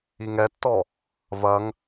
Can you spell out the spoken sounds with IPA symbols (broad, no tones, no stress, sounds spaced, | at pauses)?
i ŋ ɛ tː ɔ | v ɐ ŋ